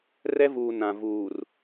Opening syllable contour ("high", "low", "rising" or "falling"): high